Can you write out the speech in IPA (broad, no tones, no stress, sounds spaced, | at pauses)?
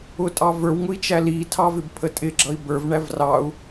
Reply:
ʊ tʼ ɑ v ə˞ w ŋ ʊ i̯ t͡ʃ æ l i tʰ ɑ v ɪ b pʰ ə tʼ ɪ ɡ͡ǁ ʌ i̯ b ə˞ v ɳ æ v r ɑ u̯